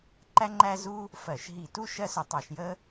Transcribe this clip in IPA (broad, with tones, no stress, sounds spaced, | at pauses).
ǃ æ˥ ŋ͡ǃ æ˥ z u˥ | f ɜ˧˩˧ ʃ ɦ i˧˩˧ t u˥ ʃ ɜ˥ s ʊ˧˩˧ tˤ ɑ˧˩˧ ʃ j ə˥